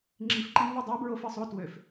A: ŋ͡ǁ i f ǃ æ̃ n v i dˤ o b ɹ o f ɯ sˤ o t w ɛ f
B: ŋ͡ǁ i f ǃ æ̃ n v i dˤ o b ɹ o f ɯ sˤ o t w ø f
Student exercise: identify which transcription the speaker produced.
B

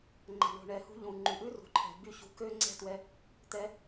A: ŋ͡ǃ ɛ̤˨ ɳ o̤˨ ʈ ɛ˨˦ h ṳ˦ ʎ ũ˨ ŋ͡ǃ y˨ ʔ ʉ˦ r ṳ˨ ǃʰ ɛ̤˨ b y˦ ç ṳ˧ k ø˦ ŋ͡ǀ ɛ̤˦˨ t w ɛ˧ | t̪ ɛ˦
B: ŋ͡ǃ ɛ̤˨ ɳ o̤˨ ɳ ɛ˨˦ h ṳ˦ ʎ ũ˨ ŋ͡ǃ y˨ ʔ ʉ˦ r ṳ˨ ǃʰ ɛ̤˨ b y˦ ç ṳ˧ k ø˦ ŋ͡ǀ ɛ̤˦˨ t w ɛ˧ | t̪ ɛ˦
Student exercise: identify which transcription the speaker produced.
B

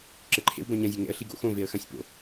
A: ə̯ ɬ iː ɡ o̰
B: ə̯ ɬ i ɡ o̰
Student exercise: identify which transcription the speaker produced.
B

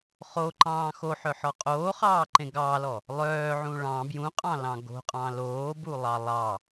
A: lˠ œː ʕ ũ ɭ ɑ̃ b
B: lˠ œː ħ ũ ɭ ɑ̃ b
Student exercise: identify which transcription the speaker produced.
A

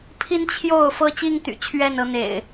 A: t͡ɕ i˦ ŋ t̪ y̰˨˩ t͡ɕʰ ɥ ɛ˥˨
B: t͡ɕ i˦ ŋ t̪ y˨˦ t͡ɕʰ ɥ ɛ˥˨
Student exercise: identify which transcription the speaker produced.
A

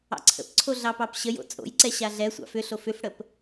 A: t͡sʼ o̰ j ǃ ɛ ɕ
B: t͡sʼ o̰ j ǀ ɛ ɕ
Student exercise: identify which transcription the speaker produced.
B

